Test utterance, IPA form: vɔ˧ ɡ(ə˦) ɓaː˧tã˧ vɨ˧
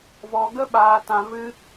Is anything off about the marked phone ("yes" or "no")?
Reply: no